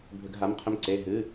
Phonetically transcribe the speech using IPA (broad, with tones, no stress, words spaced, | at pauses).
bʱʏ˧˩˧ɡ ɦa˩˧˩m qʰʏ˧mǀe˩˧˩ ɦɨ˩˧˩